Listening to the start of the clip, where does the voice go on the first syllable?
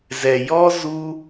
low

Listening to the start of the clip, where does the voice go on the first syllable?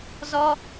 high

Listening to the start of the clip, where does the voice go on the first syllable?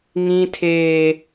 high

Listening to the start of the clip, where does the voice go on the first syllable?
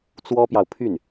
high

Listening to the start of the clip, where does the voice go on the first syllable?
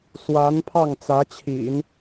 rising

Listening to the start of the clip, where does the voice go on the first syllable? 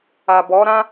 low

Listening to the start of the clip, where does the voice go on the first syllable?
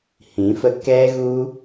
rising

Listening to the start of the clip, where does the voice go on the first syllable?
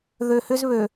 low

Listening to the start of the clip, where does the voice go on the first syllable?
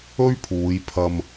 high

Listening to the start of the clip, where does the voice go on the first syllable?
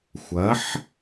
rising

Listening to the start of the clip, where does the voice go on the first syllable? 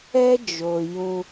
high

